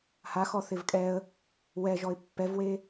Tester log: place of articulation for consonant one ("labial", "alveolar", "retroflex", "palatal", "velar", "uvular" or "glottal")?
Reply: glottal